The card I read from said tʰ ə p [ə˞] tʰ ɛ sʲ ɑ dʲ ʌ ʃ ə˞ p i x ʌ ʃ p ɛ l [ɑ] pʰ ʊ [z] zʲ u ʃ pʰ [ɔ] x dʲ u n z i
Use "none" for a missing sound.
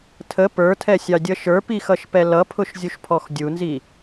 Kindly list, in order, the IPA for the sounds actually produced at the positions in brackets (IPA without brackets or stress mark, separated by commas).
ə˞, ʌ, ʃ, ɔ